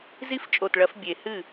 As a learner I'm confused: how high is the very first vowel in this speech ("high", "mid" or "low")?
high